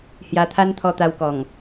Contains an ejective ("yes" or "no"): no